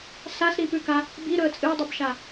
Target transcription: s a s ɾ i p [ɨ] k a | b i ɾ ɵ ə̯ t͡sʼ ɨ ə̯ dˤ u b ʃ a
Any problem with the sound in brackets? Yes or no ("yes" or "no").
yes